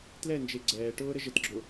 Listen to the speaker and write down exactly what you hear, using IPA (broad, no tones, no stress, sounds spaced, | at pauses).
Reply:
t l ɛ n d͡ʒ e ɡ͡ǀ ɛː ʈ ʊː ɾ ə ʒ ə t ɡ͡ǁ ʊ